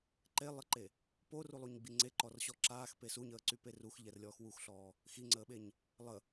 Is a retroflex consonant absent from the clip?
yes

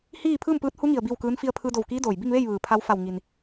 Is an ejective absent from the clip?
yes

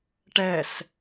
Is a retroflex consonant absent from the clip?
no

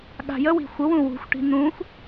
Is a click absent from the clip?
yes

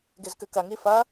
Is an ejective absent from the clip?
yes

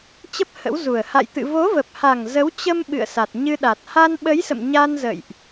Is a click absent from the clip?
yes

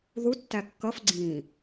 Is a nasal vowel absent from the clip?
no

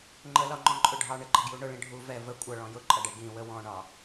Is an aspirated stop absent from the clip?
yes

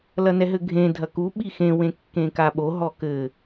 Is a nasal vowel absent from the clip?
no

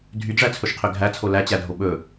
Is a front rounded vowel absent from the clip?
no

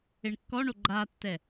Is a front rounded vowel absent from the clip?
yes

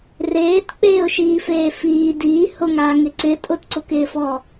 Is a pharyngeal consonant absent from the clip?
yes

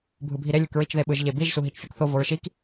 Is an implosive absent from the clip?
no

